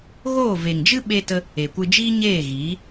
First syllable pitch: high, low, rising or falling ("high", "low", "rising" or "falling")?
falling